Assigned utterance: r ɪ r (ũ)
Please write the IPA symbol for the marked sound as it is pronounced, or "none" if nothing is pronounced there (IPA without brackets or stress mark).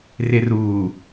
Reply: u